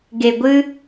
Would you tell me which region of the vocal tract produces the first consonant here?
velum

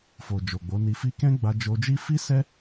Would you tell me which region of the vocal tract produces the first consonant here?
lips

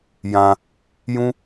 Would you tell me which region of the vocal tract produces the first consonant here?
palate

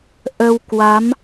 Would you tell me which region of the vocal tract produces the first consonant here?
throat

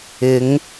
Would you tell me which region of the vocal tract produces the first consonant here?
velum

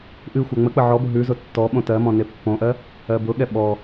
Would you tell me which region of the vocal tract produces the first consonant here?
throat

